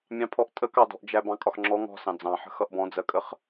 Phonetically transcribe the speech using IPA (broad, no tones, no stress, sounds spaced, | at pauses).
mʲ ɑ̃ pʰ ɔ ʔ tʼ ə k ɑ d ɔ̤ ʔ d͡ʒ æ b ɑ̃ kʼ ɒ x ŋ͡ǁ ɔ ŋ ɔ̤ s ɑ̃ d͡z ɑ̃ ħ ə̤ x ʌ ʔ b ɔ̃ d͡z ɜ kʼ ə χ